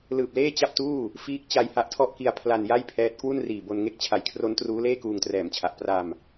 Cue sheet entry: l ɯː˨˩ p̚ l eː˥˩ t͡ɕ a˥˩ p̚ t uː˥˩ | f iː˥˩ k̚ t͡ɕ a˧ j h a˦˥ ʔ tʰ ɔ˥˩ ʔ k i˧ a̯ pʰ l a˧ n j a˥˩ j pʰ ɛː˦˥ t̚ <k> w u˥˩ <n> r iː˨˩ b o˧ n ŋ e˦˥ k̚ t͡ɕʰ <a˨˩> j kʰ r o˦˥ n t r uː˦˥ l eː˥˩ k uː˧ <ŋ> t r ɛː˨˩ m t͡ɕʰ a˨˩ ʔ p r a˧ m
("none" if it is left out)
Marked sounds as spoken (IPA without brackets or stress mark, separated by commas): k, n, a˩˦, ŋ